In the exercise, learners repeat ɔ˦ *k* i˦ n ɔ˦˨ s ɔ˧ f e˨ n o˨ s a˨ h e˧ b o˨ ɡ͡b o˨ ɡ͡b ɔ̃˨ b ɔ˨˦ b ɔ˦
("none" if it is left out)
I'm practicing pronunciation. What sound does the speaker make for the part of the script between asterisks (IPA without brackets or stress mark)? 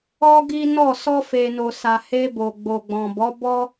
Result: ɡ